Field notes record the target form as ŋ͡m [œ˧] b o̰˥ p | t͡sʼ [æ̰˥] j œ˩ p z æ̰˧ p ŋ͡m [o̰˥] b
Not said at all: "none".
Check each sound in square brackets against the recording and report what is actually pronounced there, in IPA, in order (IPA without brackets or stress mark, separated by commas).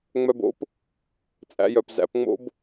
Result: œ˧, æ̰˧, o̰˥